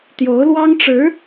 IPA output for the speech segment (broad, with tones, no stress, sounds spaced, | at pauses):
t̪ j o˧˥ ʊ̯ l w ɑ˥ ŋ ʈ͡ʂ ɻ̩˧˥